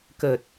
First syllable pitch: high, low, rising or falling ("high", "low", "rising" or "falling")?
low